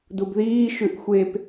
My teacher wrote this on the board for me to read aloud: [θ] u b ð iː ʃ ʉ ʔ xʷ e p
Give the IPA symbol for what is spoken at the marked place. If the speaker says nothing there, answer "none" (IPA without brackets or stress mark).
d